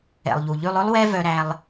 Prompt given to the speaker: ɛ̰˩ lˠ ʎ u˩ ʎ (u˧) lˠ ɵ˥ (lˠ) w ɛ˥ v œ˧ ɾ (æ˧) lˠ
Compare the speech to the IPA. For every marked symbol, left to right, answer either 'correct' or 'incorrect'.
incorrect: ʉ˧, correct, correct

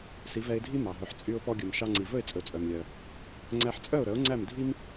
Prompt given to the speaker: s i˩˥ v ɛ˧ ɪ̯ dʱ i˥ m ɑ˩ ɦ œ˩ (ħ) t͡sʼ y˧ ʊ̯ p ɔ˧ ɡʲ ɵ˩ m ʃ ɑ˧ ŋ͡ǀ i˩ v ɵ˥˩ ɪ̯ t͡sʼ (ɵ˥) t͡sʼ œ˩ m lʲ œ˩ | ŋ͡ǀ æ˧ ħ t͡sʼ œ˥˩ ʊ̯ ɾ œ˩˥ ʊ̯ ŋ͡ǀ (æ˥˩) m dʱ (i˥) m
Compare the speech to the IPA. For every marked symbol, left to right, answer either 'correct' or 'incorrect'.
correct, incorrect: ɵ˩, correct, correct

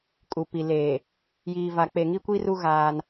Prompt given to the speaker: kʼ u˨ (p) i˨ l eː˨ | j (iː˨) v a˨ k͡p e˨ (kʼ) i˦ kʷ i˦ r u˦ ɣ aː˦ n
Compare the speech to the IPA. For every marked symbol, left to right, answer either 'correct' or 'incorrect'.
correct, correct, incorrect: ŋ

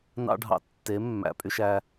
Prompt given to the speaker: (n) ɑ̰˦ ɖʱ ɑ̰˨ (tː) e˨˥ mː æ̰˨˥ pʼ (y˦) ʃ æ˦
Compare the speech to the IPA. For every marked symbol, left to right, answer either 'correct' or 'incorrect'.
correct, correct, correct

